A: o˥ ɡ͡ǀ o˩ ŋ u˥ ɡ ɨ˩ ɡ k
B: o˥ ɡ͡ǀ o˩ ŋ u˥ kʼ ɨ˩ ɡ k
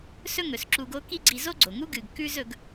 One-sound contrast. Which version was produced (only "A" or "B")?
A